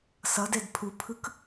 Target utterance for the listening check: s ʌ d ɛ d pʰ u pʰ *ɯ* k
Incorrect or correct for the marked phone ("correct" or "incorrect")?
correct